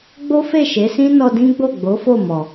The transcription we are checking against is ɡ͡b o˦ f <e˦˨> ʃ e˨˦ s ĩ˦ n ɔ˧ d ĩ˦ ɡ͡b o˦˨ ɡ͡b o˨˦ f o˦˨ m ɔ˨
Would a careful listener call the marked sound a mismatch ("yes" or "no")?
no